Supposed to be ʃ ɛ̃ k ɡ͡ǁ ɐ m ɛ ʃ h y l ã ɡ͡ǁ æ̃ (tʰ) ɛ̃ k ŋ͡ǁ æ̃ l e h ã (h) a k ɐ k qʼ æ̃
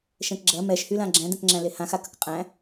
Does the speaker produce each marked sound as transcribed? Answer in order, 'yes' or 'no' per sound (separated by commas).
no, no